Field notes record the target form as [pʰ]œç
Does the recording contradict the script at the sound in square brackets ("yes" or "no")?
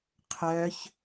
yes